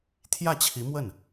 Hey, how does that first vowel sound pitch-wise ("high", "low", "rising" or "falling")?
falling